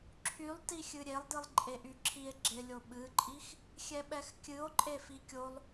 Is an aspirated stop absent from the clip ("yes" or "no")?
no